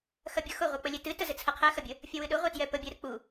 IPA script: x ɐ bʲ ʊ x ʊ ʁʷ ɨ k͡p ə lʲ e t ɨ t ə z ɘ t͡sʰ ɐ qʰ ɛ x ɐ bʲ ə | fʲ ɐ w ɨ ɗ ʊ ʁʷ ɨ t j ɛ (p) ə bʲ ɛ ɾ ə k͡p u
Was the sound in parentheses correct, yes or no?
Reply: yes